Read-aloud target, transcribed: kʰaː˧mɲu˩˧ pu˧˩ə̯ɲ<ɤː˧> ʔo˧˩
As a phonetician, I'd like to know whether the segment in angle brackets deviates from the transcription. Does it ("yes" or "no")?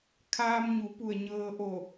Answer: no